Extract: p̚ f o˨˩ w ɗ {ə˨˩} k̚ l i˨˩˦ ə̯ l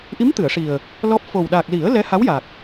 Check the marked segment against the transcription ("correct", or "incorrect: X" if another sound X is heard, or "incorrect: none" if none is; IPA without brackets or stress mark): incorrect: a˨˩